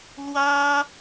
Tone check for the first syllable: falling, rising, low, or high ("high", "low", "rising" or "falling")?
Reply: high